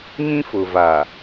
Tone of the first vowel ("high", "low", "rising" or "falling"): high